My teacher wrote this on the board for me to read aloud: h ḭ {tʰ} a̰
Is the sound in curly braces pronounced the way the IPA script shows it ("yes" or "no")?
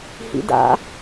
no